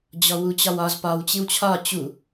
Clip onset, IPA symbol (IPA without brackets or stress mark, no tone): d͡ʑ